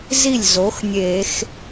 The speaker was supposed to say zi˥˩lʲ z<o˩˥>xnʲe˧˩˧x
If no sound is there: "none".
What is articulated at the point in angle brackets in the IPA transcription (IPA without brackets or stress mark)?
o˩˥